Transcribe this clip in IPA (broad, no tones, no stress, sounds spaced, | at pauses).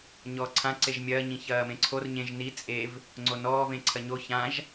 ɲ ɔː ǀʰ ã ǀ e ʒ mʲ ɐː ɲ ĩ ç ɐː m ẽ ǀʰ o r ɲ ẽ ʒ n i t͡sʼ e v | ŋ͡ǀ o n ɔː v ẽ ǀʰ ɐ ɲ o ç ã ʒ